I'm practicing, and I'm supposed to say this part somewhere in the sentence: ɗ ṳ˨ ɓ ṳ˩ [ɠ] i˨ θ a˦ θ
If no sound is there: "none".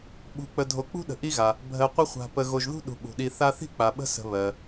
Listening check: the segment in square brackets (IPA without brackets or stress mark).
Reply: ɗ